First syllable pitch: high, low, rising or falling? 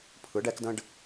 rising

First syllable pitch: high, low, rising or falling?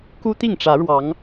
high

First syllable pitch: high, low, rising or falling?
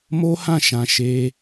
high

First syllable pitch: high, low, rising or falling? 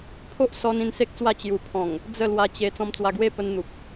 high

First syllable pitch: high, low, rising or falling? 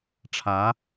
rising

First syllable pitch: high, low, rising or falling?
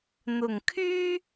low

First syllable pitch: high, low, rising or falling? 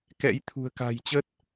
rising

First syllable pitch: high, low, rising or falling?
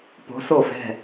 rising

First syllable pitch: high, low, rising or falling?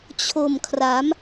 low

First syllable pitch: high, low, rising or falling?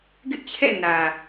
high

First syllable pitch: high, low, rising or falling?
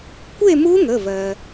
falling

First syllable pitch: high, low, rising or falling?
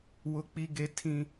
high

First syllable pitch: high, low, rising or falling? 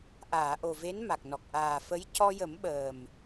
low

